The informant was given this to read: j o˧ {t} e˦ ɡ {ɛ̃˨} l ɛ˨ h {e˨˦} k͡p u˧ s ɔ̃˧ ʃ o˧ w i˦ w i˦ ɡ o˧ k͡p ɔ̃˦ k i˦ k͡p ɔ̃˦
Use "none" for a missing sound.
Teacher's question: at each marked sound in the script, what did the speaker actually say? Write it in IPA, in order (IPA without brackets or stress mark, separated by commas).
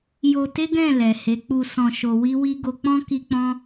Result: t, ɛ̃˦˨, e˨˦